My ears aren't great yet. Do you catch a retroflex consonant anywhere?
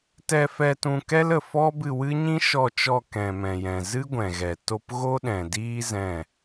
no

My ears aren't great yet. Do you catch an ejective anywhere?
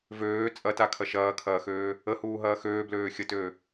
yes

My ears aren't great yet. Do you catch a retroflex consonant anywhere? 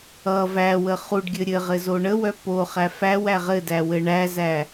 yes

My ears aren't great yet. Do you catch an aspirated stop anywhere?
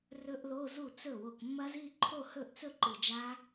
yes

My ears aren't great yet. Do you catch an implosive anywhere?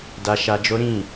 no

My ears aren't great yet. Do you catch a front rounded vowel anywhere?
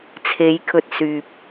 yes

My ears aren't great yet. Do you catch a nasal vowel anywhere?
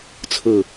no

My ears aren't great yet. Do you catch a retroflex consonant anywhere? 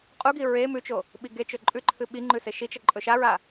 no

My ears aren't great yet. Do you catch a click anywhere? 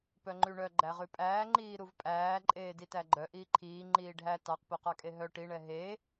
yes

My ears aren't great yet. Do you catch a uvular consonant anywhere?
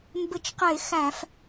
yes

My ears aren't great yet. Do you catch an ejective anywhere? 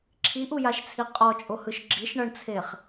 yes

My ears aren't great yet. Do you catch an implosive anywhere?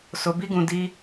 no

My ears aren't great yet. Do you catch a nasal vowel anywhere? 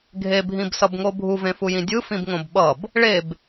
yes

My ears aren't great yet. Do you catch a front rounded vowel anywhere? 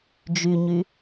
yes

